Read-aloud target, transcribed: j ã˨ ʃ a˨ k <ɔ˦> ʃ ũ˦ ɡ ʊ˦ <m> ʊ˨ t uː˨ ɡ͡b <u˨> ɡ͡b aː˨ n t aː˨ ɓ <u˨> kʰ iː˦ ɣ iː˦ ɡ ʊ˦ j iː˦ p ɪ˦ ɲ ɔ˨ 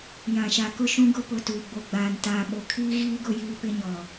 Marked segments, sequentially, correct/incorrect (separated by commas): incorrect, incorrect, incorrect, incorrect